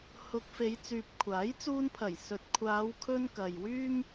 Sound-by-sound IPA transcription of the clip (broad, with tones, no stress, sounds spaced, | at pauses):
h ʊ˧ k̚ f e˨˧ j t͡s yː˨ p̚ kʷʰ aː˨˥ j t͡s uː˧ n pʰ ɐ˨˩ j s ɵ˨ t̚ kʷʰ aː˨˧ w kʰ ɵ˧ n k ɐ˨ j w yː˥ m